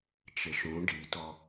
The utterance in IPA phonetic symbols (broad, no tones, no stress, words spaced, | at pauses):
t͡ʃɪʃũ ɖitɔ